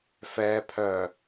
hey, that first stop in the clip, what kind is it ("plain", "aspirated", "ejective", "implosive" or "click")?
aspirated